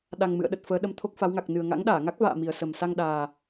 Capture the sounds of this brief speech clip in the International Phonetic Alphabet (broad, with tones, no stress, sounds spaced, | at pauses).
ɗ a˨˩ ŋ m ɨ̰˧˨ ə̯ ɗ ə˨˩ t̚ f əː˨˦ ɗ ə˨˦ m t̪ʰ o˦˥ k̚ f a˨˦ w ŋ a˨˩ k̚ n ɨ˨˩ ə̯ ŋ a̰˧˥ ŋ ɗ aː˧˩ ŋ a˦˥ k̚ v a̰ː˧˨ m i˨˩ ə̯ s ə˨˩ m s a˧ ŋ ɗ aː˨˩